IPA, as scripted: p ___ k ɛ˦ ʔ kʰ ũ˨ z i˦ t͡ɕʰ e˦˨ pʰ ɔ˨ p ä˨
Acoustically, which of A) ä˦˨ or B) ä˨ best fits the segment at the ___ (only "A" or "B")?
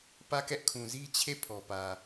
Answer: A